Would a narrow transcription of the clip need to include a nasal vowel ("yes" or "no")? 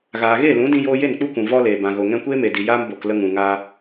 yes